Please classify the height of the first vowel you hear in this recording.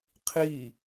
high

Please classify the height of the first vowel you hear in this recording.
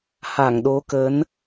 low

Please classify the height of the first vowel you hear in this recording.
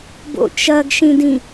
mid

